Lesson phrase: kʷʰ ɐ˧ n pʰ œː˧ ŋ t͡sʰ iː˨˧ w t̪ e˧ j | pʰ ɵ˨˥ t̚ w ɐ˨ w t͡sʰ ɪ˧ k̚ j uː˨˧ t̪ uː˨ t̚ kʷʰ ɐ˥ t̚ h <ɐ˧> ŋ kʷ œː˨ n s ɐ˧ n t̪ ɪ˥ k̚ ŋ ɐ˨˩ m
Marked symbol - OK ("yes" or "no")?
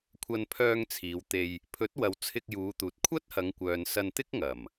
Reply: no